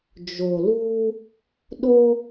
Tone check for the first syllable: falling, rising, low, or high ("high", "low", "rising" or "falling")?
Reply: low